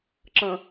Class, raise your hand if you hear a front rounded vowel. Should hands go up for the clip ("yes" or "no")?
no